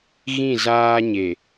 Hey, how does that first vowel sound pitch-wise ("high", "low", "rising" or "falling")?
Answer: falling